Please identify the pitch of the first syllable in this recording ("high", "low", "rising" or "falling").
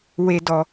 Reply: high